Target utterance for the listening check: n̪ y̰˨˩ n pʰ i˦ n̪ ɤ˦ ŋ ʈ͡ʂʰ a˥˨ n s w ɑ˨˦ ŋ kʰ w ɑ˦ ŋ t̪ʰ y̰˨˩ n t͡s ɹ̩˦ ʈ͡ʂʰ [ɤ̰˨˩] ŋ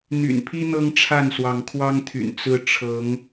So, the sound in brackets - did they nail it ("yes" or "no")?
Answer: no